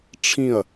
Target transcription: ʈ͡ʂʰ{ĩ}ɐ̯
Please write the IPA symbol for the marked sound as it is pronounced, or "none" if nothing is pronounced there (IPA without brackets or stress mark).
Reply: ĩ